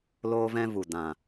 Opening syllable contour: high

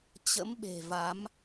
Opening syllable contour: rising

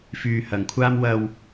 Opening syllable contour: low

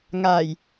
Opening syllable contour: low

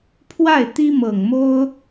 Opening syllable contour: falling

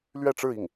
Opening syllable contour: falling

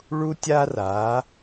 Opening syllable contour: high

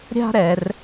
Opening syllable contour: high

